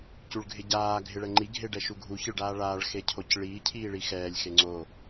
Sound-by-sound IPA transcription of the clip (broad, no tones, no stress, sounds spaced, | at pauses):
c u ɭ ɡʱ ɪ ɟ aː ɡʱ ɪ ɭ ɛ ŋ͡ǃ i ɡʱ e ɖ ɛ ʃ u ɡʱ u ç ɪ ɭ ɖ aː ɭ aː ɭ x e cʰ o c ɭ iː cʰ iː ɭ i x ɛː lʲ x e ŋ͡ǀ o